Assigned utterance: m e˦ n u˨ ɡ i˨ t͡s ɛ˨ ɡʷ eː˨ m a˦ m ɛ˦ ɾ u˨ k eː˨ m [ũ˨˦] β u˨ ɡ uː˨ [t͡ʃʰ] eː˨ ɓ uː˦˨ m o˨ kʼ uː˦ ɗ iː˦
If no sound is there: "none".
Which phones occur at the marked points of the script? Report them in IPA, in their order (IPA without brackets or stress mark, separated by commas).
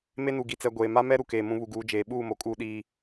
ũ˨˦, d͡ʒ